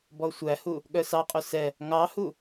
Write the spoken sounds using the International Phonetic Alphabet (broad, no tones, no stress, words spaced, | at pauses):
bɔsʷæhu | ɠœsɑqʼɵ sɛ | ŋɑhu